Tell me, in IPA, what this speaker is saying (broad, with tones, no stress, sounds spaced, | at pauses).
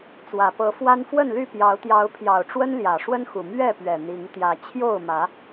t͡s w ä˨˩ p ɤ˨˦ f w a˦ n f w ə˥˨ n l y˥˨ p j ɑ˨˦ ʊ̯ t̪ j ɑ˨˦ ʊ̯ pʰ j ɑ˨˩ ʊ̯ ʈ͡ʂ w ə˦ n l j ä˨˩ ʂ w ə˦ n x u˨˩ m ɥ ɛ˥˨ p ɥ ɛ˨˩ n̪ i˨˦ ŋ t̪ j ä˨˦ t͡ɕʰ j o˥˨ ʊ̯ m ä˨˦